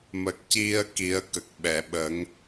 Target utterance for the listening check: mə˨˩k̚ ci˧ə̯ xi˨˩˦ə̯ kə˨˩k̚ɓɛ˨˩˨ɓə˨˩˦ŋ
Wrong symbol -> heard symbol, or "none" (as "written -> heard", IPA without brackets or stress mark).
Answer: x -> k